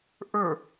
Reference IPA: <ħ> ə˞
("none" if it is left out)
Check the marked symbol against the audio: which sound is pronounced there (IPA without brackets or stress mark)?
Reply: ʔ